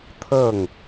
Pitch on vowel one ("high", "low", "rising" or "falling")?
falling